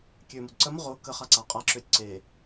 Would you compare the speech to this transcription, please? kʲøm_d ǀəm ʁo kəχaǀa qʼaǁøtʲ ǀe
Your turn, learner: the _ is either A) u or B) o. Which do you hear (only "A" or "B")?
A